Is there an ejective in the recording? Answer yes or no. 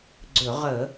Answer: no